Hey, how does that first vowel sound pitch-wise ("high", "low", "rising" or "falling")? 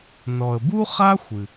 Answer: low